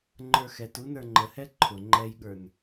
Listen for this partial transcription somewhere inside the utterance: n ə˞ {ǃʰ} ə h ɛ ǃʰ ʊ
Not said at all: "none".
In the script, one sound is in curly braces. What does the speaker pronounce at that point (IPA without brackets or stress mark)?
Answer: ŋ͡ǃ